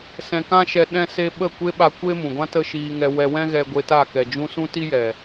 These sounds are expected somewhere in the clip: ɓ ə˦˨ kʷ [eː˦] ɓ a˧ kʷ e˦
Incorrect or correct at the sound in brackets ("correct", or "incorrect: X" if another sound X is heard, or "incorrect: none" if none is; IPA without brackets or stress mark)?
incorrect: e˦